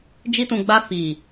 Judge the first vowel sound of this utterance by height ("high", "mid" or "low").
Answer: high